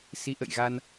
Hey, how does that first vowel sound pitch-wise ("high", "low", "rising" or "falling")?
rising